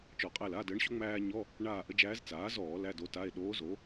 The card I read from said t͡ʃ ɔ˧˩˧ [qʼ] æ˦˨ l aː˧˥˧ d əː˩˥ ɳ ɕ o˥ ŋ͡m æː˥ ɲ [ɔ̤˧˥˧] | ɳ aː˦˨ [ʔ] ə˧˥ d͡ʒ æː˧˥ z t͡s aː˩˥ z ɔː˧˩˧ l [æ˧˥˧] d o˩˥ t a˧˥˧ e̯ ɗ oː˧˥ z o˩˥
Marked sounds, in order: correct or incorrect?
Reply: correct, incorrect: ɔ˧˥˧, correct, correct

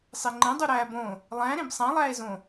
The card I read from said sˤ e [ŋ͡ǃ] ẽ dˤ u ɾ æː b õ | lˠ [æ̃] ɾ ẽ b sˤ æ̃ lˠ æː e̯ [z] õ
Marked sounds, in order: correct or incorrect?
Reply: correct, correct, correct

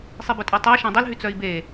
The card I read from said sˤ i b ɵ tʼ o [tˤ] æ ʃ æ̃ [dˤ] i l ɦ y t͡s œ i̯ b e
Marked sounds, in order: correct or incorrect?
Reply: correct, correct

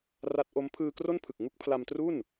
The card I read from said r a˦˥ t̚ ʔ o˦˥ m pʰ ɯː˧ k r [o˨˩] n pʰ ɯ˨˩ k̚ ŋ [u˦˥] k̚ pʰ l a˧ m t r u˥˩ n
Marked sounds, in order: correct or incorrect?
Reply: incorrect: o˥˩, correct

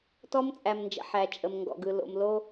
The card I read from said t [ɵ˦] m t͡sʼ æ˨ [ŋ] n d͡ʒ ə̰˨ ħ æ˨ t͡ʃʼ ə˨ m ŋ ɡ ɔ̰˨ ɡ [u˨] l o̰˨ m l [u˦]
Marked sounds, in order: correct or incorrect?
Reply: incorrect: ɔ˦, incorrect: m, incorrect: ɯ˨, incorrect: o˦

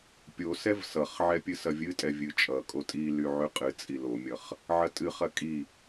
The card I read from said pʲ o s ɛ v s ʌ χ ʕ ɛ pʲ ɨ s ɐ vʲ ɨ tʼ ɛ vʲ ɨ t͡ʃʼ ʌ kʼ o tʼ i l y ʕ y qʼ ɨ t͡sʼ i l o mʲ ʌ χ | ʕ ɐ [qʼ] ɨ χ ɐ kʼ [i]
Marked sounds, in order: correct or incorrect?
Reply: incorrect: tʼ, correct

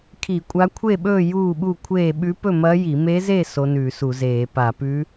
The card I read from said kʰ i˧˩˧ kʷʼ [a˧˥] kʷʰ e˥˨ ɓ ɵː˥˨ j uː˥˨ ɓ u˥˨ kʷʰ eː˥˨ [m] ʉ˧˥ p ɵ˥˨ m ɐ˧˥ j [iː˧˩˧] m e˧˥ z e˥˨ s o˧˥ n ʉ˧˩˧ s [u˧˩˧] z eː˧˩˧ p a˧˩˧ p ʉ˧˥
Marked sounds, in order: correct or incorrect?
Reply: correct, incorrect: ɓ, incorrect: i˧˩˧, correct

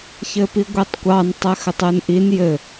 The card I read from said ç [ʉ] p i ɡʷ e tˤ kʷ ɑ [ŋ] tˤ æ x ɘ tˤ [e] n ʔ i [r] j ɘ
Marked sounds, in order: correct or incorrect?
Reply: incorrect: ɘ, incorrect: n, correct, incorrect: n

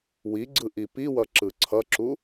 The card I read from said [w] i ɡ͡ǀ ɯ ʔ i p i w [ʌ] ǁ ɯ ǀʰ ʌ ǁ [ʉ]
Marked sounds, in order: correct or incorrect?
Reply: correct, correct, incorrect: u

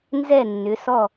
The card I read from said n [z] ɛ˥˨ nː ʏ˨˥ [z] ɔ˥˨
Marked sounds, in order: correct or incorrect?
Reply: correct, incorrect: s

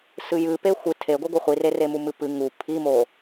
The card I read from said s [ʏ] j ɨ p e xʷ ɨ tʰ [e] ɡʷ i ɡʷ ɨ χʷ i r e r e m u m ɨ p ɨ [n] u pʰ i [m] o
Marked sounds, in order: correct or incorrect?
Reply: incorrect: ɨ, correct, incorrect: ŋ, correct

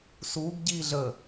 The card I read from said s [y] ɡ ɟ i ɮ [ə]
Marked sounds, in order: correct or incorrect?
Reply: incorrect: u, correct

